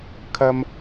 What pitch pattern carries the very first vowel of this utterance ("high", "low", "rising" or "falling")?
high